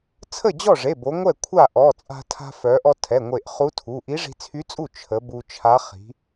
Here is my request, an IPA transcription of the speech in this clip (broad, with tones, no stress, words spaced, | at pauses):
t͡sʰə˥˩d͡ʑɔ˥˩ʐe˩˧˩bo˩˧ ŋʷɛ˥˩kʷʰa˥˩ ʔɔ˩˧˩t͡sʼa̤˧ tʰa̤˧fœ˩˧ʔɔ˧ tʰɛ˩˧˩ŋʷe˧˩ʔχu˧˥tʰu˩˧˩ ʔi˧˥ʐi̤˧t͡sʰy˧˥t͡sʼu˥˩ t͡ʃʰə˩˧ bu˧t͡ʃʰa˧˥ χi̤˩˧